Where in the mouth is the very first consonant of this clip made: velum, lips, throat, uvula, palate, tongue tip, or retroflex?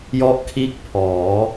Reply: palate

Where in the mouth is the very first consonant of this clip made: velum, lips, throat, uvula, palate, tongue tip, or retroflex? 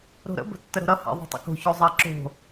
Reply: tongue tip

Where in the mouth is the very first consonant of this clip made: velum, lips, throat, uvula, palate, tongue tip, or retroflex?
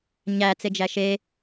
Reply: palate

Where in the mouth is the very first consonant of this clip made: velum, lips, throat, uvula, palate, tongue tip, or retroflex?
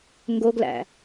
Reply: velum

